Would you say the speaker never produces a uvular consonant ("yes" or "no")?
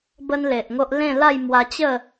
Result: yes